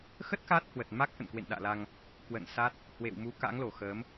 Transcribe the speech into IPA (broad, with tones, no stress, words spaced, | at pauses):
xə˦˥t̚ ka˦˥t̚hwə˨˩t̚ma˦˥k̚ ʔə̰˧˨nkwḛ˧˨nɗa̰ː˧˨la˧ŋ | kwə̰˧˨nsa˦˥t̚ | hwḛ˧˨wmu˨˦ka̰˧˥ŋlo˧˩ xəː˨˦m